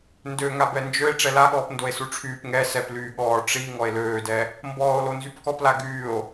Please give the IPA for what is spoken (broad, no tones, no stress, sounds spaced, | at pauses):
n d ø ŋ a b ɛ n d͡ʒ ø e̯ ʈ͡ʂ ɛ l a ɠ ɔː p n d o e̯ s u ʈ͡ʂʰ yː p ŋ ɛ s ɛ p l yː ɠ ɔː ʈ͡ʂ i ŋ ɔ e̯ l øː d ɛ | m b ɔː o̯ l o n z y p k ɔ p l a ɡ yː o̯